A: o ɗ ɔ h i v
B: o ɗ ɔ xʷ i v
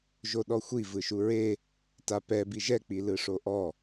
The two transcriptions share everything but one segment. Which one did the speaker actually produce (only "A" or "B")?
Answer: B